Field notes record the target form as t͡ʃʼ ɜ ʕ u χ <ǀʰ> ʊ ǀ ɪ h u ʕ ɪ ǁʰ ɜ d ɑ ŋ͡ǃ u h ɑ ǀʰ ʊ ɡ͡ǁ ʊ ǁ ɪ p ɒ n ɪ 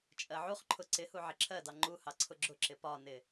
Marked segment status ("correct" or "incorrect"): incorrect